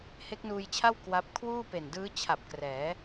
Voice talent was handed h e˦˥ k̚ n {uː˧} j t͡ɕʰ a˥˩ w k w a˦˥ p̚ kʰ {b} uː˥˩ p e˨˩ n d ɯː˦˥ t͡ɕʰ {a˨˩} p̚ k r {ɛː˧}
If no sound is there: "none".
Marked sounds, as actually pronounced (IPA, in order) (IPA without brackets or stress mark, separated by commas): uː˧, w, a˨˩, ɛː˩˦